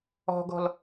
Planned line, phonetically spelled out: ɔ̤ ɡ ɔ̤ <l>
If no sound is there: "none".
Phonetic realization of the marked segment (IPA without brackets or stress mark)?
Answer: l